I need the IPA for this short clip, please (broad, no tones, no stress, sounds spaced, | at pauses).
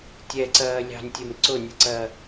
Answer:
tʲ ɛ ǀ ɜː lʲ ɑ̤ nʲ tʲ ə m ǀ ʊ nʲ ʌ ǀ ɜ